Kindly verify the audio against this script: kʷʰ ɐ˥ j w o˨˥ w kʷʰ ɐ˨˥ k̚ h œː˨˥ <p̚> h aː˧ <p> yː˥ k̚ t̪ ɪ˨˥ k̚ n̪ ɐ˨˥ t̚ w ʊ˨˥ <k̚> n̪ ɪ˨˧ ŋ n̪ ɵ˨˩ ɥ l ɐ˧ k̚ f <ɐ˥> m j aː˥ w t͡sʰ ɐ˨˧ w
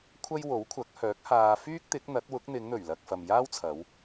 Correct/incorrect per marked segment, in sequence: incorrect, incorrect, correct, incorrect

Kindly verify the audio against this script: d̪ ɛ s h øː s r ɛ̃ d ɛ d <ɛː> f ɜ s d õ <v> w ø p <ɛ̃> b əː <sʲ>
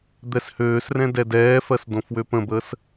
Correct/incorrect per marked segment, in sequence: correct, incorrect, incorrect, incorrect

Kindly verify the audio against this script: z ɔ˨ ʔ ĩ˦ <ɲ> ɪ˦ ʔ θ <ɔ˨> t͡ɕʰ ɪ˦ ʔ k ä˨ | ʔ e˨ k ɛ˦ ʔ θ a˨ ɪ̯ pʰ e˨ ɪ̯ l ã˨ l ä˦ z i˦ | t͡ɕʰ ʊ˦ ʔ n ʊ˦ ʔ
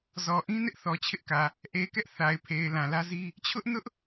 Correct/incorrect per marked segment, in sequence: incorrect, correct

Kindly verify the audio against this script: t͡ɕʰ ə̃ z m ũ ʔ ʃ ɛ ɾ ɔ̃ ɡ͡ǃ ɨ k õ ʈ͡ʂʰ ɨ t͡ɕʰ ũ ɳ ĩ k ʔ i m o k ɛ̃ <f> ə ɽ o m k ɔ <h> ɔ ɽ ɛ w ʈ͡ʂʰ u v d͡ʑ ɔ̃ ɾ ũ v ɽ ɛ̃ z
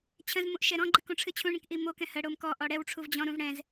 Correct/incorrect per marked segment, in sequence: incorrect, incorrect

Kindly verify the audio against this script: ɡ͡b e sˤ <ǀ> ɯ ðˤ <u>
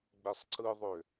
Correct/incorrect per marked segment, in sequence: correct, incorrect

